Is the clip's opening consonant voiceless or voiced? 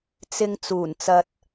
voiceless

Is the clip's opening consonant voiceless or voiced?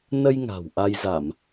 voiced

